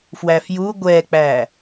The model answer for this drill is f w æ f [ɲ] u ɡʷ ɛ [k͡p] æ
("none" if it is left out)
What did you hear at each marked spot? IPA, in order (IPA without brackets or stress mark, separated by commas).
j, k͡p